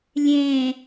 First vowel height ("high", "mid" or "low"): mid